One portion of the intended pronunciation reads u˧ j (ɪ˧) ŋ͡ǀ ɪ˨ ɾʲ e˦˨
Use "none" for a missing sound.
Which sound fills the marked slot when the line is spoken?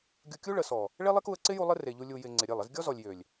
ɪ˧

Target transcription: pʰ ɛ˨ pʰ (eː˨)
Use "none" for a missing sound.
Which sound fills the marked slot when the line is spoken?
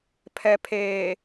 eː˨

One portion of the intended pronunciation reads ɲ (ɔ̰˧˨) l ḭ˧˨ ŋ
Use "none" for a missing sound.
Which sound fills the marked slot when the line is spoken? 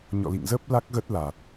ɔ̰˧˨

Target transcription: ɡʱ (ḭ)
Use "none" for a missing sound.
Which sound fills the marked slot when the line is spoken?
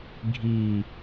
i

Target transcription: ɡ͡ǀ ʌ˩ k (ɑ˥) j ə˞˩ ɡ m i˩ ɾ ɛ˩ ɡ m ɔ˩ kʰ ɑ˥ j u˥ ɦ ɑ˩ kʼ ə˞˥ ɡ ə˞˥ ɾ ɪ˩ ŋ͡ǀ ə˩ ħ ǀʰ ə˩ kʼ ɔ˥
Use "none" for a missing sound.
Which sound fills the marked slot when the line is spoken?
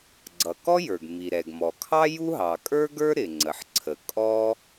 ɔ˥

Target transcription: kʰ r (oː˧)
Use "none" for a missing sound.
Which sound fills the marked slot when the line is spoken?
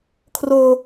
oː˧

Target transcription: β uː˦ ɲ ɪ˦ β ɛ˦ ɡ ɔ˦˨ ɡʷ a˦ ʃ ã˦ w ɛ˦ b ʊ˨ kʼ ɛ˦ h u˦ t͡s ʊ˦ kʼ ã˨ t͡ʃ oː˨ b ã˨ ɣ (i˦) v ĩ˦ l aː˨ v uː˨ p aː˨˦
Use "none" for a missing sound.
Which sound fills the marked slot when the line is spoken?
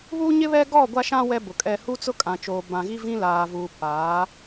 i˦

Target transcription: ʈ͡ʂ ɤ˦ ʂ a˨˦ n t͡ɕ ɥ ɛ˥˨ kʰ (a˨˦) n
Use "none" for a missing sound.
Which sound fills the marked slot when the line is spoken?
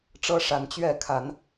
a˨˦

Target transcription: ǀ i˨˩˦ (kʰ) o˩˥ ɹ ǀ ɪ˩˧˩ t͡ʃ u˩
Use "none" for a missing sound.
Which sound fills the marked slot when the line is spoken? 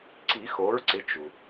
x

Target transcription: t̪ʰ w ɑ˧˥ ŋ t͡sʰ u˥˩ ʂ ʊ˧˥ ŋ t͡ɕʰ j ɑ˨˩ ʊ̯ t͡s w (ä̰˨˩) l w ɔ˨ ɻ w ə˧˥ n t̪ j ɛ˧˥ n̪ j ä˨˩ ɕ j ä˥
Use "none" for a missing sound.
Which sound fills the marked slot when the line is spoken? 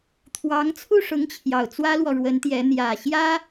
ä˥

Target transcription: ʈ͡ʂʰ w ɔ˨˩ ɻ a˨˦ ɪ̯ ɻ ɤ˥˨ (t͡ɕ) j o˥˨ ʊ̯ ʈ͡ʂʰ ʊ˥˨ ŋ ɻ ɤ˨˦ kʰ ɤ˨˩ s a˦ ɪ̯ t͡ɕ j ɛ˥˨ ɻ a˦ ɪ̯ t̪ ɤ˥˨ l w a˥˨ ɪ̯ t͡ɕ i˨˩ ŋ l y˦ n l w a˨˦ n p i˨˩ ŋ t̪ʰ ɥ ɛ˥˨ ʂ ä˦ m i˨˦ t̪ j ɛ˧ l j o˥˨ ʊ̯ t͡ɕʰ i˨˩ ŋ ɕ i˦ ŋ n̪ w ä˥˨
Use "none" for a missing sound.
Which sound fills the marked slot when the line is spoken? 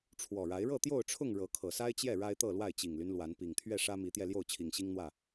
t̪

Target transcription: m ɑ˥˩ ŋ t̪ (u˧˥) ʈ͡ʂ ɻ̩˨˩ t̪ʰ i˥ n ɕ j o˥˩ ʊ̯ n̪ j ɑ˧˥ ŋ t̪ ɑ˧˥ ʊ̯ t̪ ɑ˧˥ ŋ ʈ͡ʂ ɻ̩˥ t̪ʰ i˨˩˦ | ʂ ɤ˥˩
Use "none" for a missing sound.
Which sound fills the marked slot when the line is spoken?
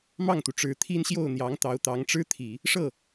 u˩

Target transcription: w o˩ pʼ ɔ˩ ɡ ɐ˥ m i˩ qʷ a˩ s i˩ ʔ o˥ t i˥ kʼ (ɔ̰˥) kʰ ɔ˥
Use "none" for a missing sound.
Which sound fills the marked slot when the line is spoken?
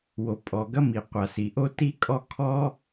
ɔ˥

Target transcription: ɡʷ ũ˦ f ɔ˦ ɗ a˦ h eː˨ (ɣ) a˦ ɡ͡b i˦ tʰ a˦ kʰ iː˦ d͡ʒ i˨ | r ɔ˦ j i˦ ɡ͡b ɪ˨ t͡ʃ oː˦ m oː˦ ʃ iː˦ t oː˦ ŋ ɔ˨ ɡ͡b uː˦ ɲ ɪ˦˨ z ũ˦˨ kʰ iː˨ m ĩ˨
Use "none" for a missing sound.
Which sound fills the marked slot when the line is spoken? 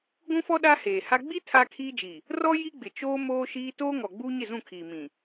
h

